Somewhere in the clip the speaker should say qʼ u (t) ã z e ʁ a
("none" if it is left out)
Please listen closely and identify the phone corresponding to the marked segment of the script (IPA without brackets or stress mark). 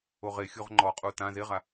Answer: t